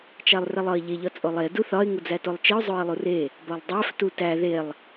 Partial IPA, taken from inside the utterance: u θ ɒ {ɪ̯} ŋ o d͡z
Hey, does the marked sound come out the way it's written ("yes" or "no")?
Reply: yes